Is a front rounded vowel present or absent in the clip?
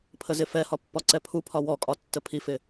absent